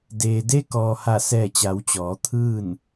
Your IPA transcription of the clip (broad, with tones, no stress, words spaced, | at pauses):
deː˩de˧kɔː˩ ha˧˩sɛː˧˩t͡ɕa˩˧wt͡ɕɔː˩˧ t̪ʰɯː˥˨n